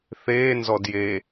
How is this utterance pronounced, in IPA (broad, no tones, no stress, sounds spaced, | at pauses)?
θ eː n z ɔ d j e